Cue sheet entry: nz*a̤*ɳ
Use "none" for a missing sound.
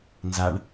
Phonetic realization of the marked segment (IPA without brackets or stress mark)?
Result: a